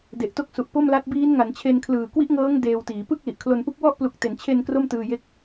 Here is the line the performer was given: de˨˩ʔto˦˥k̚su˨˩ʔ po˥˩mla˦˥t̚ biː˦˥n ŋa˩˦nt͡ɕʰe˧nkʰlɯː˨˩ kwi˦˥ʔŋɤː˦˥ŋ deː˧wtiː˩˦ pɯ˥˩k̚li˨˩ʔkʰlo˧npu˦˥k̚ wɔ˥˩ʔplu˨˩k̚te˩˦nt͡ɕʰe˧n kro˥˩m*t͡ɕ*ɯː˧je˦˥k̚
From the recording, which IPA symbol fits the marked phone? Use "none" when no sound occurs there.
t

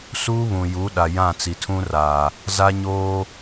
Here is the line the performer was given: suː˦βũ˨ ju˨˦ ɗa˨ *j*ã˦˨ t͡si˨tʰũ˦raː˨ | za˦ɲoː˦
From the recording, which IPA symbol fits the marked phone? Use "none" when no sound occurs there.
j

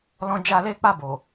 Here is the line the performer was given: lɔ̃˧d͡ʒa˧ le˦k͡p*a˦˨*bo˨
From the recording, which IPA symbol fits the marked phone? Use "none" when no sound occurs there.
a˦˨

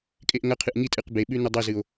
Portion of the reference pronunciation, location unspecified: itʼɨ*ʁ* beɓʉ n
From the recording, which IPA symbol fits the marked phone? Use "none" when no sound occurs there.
q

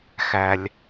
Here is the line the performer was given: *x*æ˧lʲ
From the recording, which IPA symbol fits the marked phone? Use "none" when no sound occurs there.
x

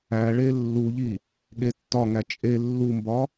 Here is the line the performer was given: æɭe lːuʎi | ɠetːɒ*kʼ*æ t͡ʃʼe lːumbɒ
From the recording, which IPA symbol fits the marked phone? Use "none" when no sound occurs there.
ŋ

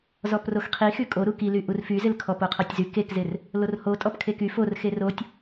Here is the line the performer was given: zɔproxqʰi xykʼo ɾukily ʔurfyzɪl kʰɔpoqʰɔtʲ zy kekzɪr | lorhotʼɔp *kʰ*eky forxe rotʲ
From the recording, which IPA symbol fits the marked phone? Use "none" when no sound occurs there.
kʰ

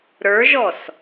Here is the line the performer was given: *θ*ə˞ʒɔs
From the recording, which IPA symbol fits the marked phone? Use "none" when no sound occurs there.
ɾ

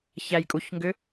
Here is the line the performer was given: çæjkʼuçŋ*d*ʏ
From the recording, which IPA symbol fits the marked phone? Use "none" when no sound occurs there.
ɡ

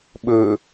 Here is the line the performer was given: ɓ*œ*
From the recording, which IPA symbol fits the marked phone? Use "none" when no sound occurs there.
ɵ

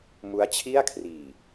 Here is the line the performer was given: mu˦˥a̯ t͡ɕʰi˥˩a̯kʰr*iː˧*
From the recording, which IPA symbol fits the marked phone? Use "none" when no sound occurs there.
iː˨˩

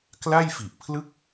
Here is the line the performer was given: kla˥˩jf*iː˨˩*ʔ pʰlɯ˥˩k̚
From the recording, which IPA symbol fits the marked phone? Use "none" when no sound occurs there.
i˨˩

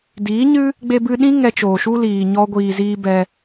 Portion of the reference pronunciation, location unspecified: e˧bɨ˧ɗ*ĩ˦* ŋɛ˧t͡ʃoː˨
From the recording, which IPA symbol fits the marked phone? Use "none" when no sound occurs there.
ĩ˦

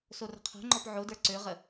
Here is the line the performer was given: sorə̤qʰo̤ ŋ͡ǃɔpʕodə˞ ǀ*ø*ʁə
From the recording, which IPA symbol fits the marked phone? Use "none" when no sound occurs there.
ø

